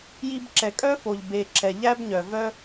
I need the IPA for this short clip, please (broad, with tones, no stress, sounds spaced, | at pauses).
j i˧ b ǁ ɛ˨ kʼ œ˦ f o˨ ʎ b e˨ ǁ ɛ˨ ʎ æ˦ b ɲ œ˨ v œ˦